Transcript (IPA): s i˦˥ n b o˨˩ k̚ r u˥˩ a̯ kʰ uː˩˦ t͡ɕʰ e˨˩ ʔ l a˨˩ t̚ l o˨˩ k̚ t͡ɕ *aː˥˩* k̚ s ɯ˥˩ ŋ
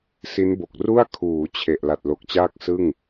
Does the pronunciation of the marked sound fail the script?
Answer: no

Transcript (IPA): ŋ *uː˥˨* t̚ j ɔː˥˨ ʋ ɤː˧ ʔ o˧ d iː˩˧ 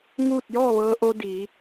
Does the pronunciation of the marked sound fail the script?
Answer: no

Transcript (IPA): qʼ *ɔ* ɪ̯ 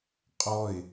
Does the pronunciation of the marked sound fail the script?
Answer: no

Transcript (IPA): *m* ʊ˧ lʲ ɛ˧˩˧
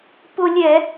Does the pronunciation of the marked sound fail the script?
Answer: yes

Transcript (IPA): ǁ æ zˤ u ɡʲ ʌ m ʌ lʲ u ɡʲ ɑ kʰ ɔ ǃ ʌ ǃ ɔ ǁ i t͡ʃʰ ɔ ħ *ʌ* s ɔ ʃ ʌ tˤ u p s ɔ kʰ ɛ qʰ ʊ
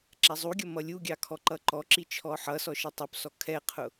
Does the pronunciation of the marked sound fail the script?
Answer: no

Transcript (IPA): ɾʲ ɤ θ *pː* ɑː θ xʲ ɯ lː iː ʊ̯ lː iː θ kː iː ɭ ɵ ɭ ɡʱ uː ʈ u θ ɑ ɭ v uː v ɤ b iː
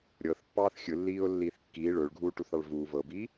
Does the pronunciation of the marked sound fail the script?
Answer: no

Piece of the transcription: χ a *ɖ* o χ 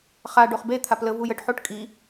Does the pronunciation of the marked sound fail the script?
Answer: no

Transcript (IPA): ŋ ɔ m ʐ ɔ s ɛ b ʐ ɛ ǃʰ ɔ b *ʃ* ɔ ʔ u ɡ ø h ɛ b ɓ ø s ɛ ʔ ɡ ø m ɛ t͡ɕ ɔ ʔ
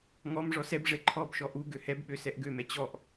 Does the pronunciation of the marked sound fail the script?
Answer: no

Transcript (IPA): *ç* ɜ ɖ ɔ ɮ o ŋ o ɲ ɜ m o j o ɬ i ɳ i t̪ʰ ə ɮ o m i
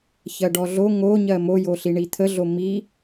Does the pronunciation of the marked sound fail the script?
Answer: no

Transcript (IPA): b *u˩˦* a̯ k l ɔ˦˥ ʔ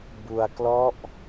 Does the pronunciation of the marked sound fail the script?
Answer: yes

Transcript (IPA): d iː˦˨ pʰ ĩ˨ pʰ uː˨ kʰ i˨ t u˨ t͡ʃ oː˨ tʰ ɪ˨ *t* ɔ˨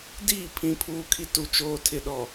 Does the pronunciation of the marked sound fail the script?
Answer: yes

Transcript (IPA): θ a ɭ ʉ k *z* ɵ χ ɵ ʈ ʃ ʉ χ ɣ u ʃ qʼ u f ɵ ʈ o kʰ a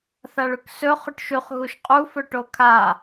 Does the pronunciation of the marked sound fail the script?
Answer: yes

